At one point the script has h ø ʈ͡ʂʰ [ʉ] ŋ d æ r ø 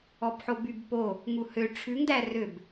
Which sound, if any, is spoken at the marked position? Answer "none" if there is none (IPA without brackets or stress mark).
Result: ʉ